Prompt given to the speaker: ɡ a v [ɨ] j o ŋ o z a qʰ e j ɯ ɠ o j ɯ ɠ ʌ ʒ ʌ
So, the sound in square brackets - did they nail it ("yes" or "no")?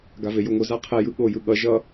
no